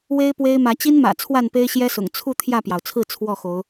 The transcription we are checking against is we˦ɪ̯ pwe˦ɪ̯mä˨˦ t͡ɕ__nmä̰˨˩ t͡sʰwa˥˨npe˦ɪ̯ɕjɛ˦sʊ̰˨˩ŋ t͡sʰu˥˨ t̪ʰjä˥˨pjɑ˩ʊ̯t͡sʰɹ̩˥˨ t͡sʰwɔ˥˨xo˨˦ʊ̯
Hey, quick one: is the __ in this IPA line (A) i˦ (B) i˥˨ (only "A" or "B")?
A